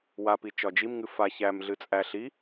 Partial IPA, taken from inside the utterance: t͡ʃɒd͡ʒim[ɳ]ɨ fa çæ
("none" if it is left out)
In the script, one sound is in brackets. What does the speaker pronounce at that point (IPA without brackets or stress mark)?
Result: ŋ